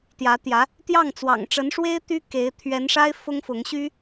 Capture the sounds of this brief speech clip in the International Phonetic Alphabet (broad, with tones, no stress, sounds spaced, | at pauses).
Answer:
t̪ j ä˧˥ t̪ j ä˧˥ | t̪ j ɑ˥˩ ŋ t͡s w ɑ̰˨˩ ŋ ʈ͡ʂ ə˧˥ n ʂ w e˥ ɪ̯ t̪ y˥ k e˧˥ ɪ̯ t̪ʰ ɥ ɛ˧˥ n ʂ a˥ ɪ̯ f ʊ˥ ŋ f ʊ˧˥ ŋ ɕ y˥